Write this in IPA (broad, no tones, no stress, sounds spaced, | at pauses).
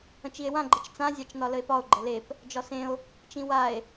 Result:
ə̃ t͡ʃ i e̯ w ã ɡ͡ǃ ə t͡ʃ t͡s ã zʲ ɑ t͡ʃ n ɒ l ə e̯ p ɒ o̯ ɡ͡ǃ ə l e p | d͡ʒ ɒ s ẽ o̯ | t͡ʃ ĩ w a e̯